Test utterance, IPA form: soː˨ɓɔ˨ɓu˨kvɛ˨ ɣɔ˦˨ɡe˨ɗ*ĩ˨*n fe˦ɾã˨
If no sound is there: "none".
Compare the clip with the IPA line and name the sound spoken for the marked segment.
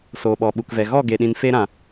ĩ˨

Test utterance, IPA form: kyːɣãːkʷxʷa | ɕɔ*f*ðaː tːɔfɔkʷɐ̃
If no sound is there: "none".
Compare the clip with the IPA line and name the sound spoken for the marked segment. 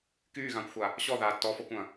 none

